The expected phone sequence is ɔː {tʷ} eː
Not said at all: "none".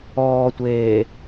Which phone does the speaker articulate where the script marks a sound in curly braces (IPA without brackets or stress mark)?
tʷ